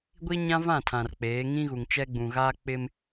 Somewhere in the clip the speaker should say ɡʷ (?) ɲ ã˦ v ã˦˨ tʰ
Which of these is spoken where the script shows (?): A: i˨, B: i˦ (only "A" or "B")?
B